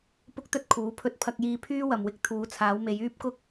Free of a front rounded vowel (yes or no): no